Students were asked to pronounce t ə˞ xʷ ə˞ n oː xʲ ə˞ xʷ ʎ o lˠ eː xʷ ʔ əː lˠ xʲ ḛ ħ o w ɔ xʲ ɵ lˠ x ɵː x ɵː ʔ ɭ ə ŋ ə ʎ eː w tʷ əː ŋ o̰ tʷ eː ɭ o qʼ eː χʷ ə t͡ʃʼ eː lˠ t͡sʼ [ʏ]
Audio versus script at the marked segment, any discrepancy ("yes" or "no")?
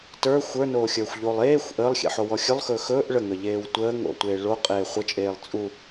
yes